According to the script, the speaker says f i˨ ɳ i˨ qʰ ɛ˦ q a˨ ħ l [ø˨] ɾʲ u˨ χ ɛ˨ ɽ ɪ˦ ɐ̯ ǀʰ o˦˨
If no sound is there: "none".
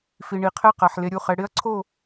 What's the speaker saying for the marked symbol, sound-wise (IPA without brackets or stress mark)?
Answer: e˨